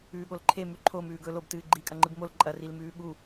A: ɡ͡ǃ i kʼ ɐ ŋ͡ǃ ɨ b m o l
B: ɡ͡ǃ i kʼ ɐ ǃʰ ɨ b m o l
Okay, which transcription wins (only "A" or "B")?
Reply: A